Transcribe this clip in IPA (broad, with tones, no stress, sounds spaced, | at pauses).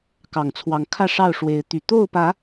k ɑ˨˩ ŋ t͡sʰ w ɑ˨˦ ŋ kʰ ä˥˨ ʂ ɑ˥˨ ʊ̯ ʂ w e˨˦ ɪ̯ t̪ y˨˩ t̪ o˥˨ ʊ̯ p ä˨˦